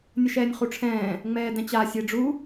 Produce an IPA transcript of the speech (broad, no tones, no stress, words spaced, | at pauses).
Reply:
nʲəʃɛːnʲχuʈ͡ʂʰɛ̃ː | ŋ͡mɛːdɛ̃t͡ɕa sʲeɖ͡ʐu